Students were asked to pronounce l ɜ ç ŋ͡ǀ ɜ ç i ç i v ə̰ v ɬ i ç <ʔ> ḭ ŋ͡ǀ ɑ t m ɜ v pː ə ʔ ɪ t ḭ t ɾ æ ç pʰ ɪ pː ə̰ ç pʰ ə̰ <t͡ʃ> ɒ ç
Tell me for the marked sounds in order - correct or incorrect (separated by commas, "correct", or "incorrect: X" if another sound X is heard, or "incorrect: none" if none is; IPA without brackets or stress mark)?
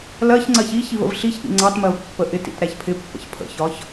correct, incorrect: ç